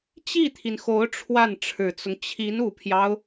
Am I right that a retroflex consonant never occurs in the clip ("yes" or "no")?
no